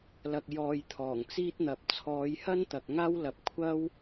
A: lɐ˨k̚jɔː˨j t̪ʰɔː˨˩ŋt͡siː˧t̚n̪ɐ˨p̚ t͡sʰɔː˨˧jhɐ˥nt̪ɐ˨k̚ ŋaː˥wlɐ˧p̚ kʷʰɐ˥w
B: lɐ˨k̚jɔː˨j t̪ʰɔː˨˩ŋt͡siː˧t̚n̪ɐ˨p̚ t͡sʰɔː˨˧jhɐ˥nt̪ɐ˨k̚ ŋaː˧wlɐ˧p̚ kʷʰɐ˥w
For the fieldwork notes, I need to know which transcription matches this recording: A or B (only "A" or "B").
A